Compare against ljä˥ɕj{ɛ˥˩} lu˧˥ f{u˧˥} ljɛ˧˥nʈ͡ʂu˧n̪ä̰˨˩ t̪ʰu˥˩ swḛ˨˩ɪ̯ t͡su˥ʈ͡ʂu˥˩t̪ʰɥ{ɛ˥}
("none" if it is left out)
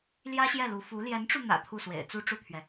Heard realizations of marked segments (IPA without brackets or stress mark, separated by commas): ɛ˥˩, u˧˥, ɛ˩